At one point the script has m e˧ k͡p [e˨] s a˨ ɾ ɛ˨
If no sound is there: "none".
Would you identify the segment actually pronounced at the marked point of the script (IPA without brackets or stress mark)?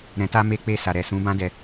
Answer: e˧